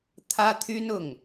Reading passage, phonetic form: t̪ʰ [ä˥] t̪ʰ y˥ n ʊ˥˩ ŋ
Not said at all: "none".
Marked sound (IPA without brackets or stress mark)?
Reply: ä˥